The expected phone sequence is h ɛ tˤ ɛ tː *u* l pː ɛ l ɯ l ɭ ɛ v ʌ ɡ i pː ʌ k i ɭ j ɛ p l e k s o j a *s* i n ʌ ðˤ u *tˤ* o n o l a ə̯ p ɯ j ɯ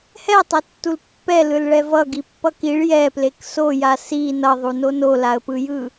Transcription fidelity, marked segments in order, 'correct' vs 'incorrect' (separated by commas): correct, correct, incorrect